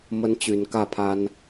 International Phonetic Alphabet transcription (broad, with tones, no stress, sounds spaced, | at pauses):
m ə˦ n t͡ɕ y˨˦ n k ä˥˨ pʰ a˦ n